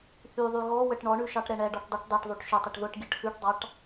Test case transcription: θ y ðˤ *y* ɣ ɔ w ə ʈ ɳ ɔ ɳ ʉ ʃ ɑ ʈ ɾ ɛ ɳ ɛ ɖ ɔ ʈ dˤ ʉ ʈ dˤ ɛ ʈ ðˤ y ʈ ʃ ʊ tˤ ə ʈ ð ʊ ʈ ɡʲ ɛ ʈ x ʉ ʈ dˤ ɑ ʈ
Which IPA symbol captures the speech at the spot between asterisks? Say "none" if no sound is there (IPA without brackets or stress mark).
y